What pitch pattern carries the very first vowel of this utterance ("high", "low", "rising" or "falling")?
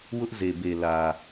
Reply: high